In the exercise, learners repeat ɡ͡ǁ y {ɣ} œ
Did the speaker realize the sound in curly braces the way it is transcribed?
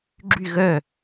yes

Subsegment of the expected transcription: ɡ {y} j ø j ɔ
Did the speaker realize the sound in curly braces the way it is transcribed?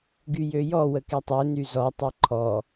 yes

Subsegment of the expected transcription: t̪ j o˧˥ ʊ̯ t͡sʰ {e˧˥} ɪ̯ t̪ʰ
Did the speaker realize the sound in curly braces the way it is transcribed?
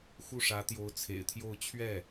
no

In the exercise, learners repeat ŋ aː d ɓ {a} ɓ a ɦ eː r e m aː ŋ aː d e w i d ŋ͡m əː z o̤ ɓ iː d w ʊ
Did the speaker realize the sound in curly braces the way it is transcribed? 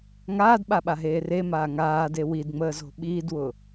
yes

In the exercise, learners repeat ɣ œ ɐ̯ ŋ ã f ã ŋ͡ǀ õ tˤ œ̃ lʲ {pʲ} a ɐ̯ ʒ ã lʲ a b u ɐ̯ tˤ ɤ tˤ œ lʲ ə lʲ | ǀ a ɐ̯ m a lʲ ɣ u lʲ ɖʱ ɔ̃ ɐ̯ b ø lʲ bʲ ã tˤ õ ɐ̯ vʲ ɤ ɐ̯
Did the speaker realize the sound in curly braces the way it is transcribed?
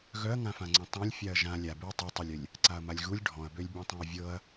no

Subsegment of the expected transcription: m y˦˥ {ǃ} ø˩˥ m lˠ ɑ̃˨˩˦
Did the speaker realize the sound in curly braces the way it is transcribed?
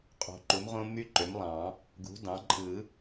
yes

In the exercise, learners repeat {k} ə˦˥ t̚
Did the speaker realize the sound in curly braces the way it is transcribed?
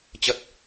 no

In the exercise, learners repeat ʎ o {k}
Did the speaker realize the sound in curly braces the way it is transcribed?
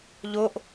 no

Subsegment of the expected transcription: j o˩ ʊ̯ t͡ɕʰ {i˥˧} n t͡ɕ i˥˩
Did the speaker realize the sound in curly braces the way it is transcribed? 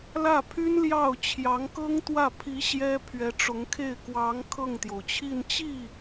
yes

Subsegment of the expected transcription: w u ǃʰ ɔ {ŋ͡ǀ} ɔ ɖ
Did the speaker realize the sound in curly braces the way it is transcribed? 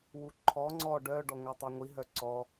yes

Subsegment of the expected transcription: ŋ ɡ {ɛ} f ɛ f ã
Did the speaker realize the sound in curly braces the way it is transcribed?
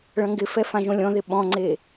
no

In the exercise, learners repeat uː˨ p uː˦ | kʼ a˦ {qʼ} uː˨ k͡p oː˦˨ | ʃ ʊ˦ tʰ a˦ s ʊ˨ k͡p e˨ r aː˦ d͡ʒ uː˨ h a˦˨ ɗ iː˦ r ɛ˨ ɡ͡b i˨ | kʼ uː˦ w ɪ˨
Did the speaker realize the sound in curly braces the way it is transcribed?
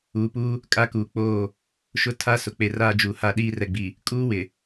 no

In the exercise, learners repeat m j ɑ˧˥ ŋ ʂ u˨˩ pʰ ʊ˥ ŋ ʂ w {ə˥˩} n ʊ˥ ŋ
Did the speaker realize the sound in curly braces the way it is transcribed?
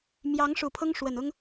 no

